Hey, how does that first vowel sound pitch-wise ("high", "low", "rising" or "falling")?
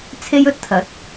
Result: high